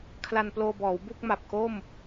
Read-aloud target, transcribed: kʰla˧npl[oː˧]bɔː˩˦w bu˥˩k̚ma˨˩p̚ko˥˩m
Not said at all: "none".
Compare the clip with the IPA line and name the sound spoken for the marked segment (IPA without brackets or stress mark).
oː˧